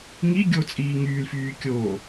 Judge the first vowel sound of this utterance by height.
high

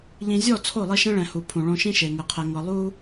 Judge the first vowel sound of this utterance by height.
high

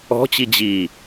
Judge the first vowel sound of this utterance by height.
mid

